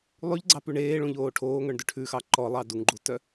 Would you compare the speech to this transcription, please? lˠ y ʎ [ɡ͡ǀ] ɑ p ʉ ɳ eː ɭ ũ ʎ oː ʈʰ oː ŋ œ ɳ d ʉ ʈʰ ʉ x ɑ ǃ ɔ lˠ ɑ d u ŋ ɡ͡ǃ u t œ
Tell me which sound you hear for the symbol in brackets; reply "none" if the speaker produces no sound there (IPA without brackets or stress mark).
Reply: ɡ͡ǀ